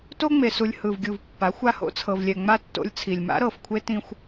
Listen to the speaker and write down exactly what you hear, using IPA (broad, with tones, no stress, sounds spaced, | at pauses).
t o˦ ŋ͡m e˨ s u˨ lʲ h ɯ˨ v ɡʲ u˨ v pː a˨˦ xʷ a˦ h o̰˦ t͡sʰ ɤ˨ v lʲ ɛ˨ ŋ͡m a˦˨ tː o̰˦ lʲ t͡sʰ i˨ lʲ m a̰˦ ɾ ɤ˨ f kʷʰ e˦ t ĩ˦ xʷ